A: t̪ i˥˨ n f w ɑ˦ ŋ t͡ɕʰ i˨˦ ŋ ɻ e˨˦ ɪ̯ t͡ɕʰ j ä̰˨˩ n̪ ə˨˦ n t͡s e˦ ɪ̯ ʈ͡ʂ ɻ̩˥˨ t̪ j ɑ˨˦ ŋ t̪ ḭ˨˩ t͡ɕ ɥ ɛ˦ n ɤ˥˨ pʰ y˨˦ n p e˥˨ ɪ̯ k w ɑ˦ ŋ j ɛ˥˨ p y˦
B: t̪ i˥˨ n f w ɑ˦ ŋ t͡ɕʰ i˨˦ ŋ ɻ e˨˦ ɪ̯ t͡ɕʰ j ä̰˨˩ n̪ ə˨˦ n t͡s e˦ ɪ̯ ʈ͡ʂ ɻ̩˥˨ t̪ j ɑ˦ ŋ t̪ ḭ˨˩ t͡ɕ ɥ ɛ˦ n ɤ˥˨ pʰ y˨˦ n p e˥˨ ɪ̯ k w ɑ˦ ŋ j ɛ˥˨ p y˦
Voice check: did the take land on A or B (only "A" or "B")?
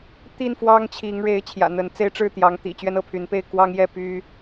A